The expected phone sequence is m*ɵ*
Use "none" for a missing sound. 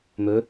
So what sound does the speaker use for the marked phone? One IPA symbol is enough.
ɵ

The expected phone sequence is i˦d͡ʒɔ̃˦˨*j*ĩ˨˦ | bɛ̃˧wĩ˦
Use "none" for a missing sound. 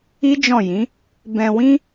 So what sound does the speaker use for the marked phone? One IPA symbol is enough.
j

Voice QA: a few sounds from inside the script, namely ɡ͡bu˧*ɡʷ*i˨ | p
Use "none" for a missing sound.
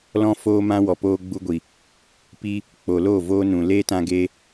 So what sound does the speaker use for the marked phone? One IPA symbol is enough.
ɡʷ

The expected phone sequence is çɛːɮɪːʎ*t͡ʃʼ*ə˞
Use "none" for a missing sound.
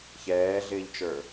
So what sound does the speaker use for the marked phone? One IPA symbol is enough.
t͡ʃ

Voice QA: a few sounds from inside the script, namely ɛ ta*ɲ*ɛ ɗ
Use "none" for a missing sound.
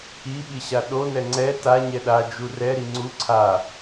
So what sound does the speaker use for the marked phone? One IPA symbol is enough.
ɲ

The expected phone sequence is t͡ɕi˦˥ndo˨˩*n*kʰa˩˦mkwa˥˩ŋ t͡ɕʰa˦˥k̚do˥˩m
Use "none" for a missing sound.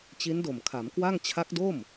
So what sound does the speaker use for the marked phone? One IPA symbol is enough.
m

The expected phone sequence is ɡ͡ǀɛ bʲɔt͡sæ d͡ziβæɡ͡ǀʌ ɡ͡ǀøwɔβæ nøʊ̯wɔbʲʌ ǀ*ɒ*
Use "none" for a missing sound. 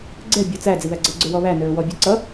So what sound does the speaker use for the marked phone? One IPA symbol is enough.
ʌ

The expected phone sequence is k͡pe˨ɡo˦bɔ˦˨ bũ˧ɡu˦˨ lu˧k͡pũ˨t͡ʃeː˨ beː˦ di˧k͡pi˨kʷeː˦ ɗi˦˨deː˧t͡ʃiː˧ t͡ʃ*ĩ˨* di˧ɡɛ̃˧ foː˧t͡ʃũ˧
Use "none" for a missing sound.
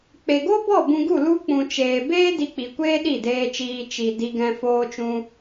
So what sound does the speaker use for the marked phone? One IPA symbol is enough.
i˨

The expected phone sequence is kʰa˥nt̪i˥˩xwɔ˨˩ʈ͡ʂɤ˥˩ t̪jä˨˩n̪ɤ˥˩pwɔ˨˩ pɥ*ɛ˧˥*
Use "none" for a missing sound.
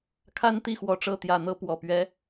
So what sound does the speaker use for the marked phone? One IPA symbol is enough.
ɛ˧˥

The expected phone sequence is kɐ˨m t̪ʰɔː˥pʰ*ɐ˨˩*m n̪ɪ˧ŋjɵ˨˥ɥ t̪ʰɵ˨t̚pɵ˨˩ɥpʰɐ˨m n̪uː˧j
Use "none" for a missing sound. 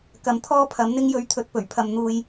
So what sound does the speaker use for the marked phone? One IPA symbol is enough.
ɐ˨˥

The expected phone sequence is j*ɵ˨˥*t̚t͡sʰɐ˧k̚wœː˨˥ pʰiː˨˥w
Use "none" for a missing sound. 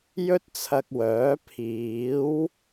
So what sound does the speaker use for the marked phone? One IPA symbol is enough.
ɵ˥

